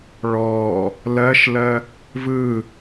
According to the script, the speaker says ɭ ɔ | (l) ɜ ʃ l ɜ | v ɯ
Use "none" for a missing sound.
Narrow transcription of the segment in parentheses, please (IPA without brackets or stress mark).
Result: l